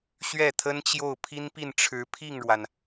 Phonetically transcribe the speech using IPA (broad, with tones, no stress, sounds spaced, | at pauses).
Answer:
ɕ ɥ ɛ˥˩ t̪ʰ ə˥ n t͡ɕ j o˥˩ ʊ̯ pʰ i˥ n p i˥˩ n ʈ͡ʂʰ ɻ̩˧˥ pʰ i˥˩ ŋ ɻ w a˩ n